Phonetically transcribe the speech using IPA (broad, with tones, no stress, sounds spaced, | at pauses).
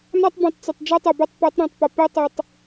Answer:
n a˦ tˤ b ũ˨ tˤ t͡s ə˨ tˤ d͡ʒ ɛ˦ tˤ ɛ˨ b ɤ˦ tˤ p ɛ˨˦ tˤ ɾ ɑ̃˨ tˤ p ə˨ p i˦ tˤ i˨ tˤ